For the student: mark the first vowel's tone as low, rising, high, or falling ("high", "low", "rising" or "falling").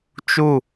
falling